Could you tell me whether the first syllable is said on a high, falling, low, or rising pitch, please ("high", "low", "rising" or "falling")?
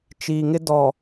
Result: low